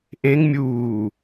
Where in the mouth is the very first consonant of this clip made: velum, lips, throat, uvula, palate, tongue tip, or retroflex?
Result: throat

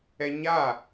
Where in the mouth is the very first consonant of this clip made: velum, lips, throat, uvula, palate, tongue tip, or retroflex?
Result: palate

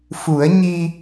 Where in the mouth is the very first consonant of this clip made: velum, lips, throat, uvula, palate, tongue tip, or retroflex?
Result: lips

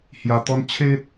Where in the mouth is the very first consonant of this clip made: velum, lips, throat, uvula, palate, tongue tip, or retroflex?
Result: throat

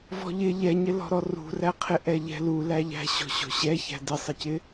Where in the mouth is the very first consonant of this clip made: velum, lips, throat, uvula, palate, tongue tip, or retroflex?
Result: lips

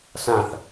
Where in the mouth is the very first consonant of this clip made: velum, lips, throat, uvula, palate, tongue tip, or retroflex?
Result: tongue tip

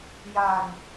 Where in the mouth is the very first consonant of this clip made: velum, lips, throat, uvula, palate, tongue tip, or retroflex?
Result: palate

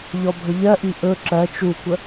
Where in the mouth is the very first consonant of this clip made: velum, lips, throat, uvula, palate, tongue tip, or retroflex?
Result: palate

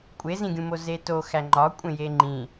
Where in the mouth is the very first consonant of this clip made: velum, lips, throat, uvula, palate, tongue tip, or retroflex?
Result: velum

